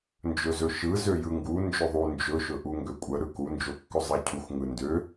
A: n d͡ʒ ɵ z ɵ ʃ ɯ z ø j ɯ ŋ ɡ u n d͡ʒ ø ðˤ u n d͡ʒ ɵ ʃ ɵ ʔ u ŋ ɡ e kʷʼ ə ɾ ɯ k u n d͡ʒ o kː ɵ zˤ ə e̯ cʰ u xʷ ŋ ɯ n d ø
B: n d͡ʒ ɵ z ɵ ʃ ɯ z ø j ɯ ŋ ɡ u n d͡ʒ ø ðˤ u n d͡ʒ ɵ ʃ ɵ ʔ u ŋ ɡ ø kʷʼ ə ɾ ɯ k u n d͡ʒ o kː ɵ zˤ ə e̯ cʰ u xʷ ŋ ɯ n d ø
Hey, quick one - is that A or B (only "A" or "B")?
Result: B